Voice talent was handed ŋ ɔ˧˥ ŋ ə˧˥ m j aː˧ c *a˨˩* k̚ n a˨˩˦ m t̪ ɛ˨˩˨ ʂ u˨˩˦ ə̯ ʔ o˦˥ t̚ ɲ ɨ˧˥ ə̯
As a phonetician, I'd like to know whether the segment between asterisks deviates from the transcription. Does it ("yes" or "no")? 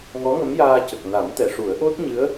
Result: yes